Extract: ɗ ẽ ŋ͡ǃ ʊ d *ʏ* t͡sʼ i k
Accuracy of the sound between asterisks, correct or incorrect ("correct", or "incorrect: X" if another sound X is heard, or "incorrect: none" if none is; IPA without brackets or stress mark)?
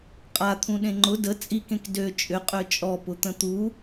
incorrect: ə